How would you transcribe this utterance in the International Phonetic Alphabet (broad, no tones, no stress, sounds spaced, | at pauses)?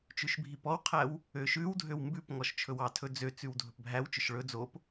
t͡ʃ ʉ ʃ bʱ i p ɔ w qʰ æ w | ø ʃ ʉ w dʱ ø w m b ʉ p ŋ ɔ ʃ t͡ʃʰ ɵ w ɑ tʰ ɵ d͡z ø t͡s ʉ w dʱ ɵ p bʱ æ w t͡ʃ ɵ ʃ ɭ ɵ d͡z o p